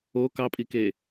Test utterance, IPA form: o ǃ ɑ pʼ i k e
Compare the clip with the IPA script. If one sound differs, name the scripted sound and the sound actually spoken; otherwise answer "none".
ǃ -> k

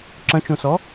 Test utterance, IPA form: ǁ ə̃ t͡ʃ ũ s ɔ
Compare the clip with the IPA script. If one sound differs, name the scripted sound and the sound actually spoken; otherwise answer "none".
none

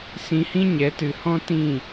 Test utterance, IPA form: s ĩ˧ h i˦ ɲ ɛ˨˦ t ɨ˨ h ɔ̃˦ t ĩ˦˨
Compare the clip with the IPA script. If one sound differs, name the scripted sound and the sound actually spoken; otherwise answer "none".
i˦ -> ĩ˦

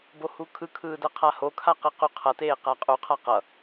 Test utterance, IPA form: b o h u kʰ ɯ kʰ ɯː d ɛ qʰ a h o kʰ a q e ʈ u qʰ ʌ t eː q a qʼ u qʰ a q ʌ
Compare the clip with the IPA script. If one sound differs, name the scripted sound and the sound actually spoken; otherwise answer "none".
ʈ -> q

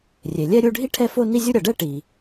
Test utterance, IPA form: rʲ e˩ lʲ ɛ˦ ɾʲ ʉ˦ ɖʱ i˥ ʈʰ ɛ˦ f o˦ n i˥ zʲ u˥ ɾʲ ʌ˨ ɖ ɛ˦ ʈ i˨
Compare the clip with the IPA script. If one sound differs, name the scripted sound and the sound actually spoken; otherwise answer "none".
ʉ˦ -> u˦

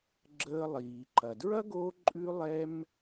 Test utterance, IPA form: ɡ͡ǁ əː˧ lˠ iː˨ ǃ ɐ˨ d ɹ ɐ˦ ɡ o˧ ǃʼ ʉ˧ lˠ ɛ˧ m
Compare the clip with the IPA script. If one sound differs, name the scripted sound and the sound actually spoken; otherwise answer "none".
none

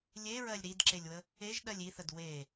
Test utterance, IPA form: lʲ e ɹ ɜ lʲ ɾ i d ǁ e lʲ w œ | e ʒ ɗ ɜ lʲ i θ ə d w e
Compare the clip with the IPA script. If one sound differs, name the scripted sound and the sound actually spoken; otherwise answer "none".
œ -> ə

